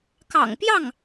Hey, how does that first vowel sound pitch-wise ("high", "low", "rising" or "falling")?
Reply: low